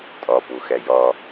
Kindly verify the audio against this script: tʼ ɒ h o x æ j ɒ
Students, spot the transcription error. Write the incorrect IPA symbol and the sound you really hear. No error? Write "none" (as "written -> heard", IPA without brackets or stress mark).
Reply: h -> p